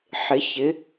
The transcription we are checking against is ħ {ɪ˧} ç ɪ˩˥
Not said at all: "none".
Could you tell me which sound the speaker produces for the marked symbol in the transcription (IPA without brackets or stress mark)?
ɪ˩˥